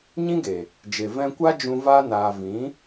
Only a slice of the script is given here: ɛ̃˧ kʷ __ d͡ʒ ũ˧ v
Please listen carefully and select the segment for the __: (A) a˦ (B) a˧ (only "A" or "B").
A